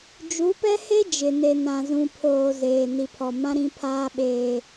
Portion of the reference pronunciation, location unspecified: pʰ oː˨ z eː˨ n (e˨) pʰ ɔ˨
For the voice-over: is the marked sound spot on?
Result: no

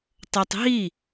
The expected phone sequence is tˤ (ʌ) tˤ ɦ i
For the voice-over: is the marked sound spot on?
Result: yes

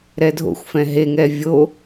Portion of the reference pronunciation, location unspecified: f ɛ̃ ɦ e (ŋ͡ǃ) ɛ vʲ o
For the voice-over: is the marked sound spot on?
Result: no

